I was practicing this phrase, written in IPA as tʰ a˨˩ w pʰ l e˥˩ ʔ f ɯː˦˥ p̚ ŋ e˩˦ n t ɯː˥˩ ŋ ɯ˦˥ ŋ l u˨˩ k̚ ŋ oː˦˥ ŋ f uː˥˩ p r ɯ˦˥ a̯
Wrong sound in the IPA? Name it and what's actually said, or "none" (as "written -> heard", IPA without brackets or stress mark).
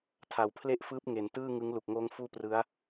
none